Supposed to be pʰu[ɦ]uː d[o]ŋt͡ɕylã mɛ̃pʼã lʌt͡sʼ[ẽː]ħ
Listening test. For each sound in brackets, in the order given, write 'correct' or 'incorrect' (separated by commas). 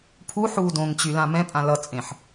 incorrect, incorrect, incorrect